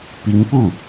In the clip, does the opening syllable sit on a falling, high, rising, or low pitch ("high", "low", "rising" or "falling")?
rising